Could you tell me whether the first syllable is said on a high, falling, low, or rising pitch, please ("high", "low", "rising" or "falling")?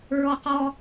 high